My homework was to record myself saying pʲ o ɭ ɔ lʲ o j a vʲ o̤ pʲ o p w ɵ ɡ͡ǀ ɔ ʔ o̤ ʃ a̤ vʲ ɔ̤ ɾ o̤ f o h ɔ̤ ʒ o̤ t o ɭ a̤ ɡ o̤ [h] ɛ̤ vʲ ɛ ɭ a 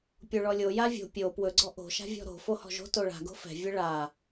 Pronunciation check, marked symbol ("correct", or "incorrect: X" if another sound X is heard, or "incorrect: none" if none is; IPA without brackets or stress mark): incorrect: f